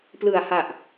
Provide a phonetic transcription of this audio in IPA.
plɯ˨˩a̯ha˨˩ʔ

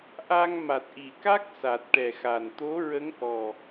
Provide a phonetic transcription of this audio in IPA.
ʔa˧ŋ ma˨˩t̚ʔi˨˩ka˦˥k̚ sa˨˩t̚ʈɛ˨˩xa˨˩n t̪o˧˥ɹə˧˥ŋ ʔɔ˨˩

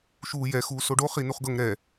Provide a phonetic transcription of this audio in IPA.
ʃuːjɛ xuːsoɖo χinuχɡɤŋ ɾɛ

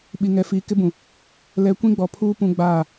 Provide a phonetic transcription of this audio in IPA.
ɓi˨ŋɛ˨fiː˨ kɪ˦bũ˨ | lɛ˨kʷĩ˦ɡ͡bɔ˨pʰuː˦ pũ˦ɡ͡baː˦˨

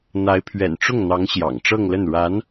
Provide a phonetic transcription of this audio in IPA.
n̪a˧˥ɪ̯pʰɥɛ̰˨˩nʈ͡ʂʊ˥˩ŋn̪ɑ˧˥ŋ ɕjɑ̰˨˩ŋʈ͡ʂɤ˥˧ŋlə˥˩n ɻa˧˥n

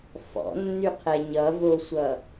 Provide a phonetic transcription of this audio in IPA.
fɔ̰nːyqʰɛ ɲʌvosʷʌ

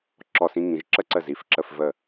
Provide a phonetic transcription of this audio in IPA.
ǁɔ˧˩sĩ˧ŋĩ˩˧ʒ ǁə˧ǀə˧˩zi˧˩f ǁə˥˧fvə˥˧

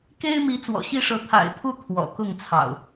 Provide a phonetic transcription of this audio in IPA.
ke˦ɪ̯mi˨˦ t͡swɔ̰˨˩ɕi˥˨ʂɤ˨˦ t̪ʰa̰˨˩ɪ̯t̪ʰu˥˨ t̪ʰwɔ̰˨˩kʊ˥˨ŋt͡sʰɑ̰˨˩ʊ̯

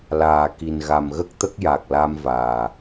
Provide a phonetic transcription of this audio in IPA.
laː˨˩ki˨˩n ɣa˨˩mɣə˦˥k̚t̪ə˦˥k̚ ja˨˩k̚la˧mvaː˨˩

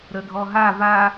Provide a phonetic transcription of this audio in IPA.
ɾədʱɔɦa va

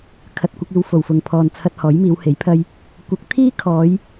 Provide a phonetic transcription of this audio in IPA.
kʰɐ˨t̚kʷɐ˧k̚iː˨w fo˨˩wfʊ˨ŋpʰɔː˨nt͡sʰɐ˧t̚ hɔː˨˥jmiː˨˧whe˨˥jpʰɐ˥j | kʷɐ˨˥k̚t̪ʰiː˥kʰɔː˨˧j

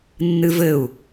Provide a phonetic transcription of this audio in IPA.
nːɨvɘu̯

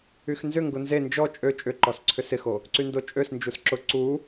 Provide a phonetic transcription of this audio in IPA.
yxnzʏŋɡʊ nze nd͡ʒɔ t͡ʃʼø t͡ʃʼʏǃɔs ǀʰʏsɪxo | ǀyndot͡ʃʼøsnd͡ʒus ǁʊ ǀu

